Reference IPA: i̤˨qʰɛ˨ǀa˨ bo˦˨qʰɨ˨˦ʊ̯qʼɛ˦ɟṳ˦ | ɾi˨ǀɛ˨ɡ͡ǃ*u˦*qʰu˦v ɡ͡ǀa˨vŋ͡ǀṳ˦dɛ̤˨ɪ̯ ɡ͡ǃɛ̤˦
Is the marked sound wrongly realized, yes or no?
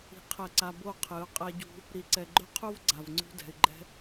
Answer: yes